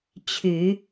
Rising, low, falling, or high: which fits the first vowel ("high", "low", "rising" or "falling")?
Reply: low